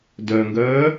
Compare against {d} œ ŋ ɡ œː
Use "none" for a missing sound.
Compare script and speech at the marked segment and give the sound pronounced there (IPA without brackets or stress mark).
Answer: d